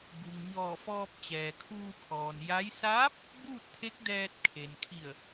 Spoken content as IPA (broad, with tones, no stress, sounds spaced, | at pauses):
b u˩ ŋ ɲ ɔː˧˩ f ɔː˧ p̚ t͡ɕ ɛː˩ kʰ uː˧ kʰ ɔː˩ n j a˧˥ j s aː˧˥ p̚ | b uː˥˨ t̚ t̪ʰ e˧˥ k̚ d ɛː˧ t̚ kʰ e˩ n kʰ i˧˩ ə̯